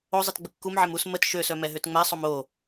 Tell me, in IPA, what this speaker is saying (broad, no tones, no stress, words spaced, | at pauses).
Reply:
ozˤit ɡ͡bəkːumʕem us mət ʃøsœ mɛɦøtŋ͡mɛsˤom o